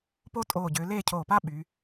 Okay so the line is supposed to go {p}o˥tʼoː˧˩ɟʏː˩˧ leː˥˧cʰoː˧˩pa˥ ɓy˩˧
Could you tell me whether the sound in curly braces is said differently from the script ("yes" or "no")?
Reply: no